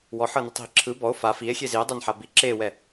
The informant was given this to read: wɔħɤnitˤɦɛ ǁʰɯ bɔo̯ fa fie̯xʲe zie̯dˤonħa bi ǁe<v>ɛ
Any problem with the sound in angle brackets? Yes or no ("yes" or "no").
yes